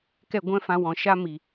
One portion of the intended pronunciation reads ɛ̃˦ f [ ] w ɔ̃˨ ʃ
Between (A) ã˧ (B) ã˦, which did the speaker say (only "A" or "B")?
A